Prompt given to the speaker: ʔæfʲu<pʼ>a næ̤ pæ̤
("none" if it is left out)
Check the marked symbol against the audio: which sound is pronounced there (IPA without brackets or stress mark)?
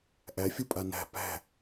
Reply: pʼ